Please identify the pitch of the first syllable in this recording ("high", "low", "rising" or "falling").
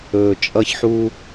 low